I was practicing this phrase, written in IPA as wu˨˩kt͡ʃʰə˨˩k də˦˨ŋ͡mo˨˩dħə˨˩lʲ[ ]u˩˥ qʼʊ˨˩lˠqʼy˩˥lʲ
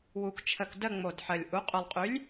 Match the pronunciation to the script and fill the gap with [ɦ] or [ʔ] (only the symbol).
ʔ